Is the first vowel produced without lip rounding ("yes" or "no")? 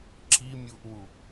yes